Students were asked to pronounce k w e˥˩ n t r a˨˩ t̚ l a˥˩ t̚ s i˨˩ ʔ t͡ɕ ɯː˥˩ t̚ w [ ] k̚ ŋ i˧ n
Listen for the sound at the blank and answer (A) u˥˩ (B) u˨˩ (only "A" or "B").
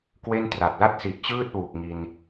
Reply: B